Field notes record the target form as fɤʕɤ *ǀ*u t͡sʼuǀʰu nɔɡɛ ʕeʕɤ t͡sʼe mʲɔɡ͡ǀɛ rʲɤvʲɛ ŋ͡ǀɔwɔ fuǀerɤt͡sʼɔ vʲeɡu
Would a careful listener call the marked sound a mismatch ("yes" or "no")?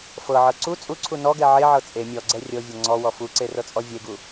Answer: no